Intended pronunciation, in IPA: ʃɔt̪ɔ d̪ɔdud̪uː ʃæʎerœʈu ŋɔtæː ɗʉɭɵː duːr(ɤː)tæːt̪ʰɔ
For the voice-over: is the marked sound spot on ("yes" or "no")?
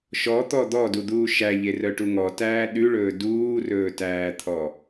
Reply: no